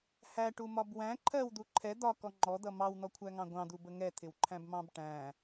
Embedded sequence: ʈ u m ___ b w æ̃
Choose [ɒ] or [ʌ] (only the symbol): ɒ